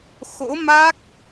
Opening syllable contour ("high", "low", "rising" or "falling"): rising